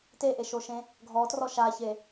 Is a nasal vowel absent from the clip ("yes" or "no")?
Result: no